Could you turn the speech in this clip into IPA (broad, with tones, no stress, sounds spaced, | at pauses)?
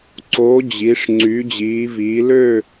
ǀ oː˨˥ d͡ʑ i˨˥ ʂ ŋ͡ǀ y˨˥ d͡ʑ iː˨˥ v iː˨˥ l ø˥˧